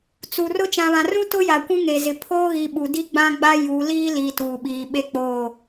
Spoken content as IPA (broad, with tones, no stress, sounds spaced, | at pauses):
t͡s u˨ r ʊ˦ t͡ʃ ã˨ β ã˨ r ũ˦ t ʊ˦ j a˨ kʷ ũ˦ ŋ e˨ z ɪ˨ pʰ oː˦ ɣ i˨ ɓ u˨ d i˦ ɡ͡b ã˦ ɡ͡b a˦ j u˨˦ l iː˦ l i˨ t uː˨ ɓ iː˨ ɓ e˦ k͡p oː˦˨